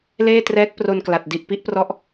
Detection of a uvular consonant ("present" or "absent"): absent